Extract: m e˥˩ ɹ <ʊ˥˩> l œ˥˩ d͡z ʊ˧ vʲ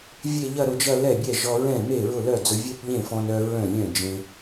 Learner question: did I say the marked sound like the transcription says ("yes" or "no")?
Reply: yes